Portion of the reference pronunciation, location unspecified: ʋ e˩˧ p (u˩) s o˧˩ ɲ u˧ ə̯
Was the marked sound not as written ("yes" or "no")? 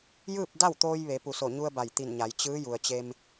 no